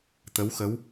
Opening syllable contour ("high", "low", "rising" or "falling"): rising